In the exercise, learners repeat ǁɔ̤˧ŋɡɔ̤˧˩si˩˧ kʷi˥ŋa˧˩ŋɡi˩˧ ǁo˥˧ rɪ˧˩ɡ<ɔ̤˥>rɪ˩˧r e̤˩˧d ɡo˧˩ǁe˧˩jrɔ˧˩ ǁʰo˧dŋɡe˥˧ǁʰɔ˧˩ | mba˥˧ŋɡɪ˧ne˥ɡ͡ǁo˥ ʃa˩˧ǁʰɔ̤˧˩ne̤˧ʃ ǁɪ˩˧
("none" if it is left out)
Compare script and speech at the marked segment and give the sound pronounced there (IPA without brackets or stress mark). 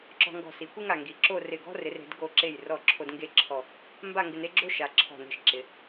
ɔ̤˥